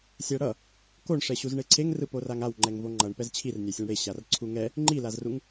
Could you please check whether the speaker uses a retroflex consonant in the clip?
yes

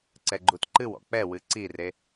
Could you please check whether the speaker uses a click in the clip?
yes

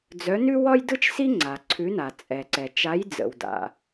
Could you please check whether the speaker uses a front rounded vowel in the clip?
yes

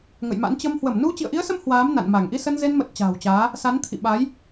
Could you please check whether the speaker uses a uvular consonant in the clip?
no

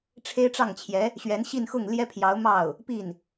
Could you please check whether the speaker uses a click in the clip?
no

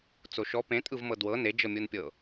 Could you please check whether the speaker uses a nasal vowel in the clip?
yes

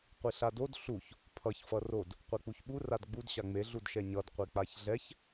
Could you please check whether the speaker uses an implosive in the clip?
yes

